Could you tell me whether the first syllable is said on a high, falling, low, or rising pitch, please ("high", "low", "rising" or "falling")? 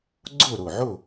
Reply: falling